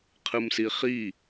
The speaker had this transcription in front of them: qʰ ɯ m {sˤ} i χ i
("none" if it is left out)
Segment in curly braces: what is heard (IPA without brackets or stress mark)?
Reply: s